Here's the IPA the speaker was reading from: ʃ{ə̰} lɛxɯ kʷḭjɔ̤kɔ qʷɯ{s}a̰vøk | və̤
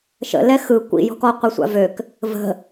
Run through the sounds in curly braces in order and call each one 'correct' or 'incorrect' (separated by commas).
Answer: correct, incorrect